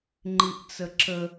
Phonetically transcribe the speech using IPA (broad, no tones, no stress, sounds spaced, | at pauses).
ŋ͡ǃ i ʔ t͡s ə ǁ ə